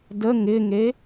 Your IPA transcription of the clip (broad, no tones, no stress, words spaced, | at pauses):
də ŋɪŋe